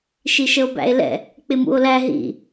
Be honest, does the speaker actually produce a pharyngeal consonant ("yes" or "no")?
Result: no